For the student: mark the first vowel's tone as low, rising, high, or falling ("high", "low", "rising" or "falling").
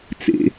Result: low